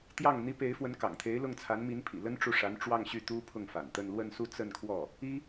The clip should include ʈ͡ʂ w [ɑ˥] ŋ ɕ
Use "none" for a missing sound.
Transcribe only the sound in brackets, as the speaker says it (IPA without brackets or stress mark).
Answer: ɑ˥˧